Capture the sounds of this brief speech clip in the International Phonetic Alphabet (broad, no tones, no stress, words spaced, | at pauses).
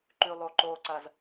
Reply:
ǃʉlˠoǃoǀɐz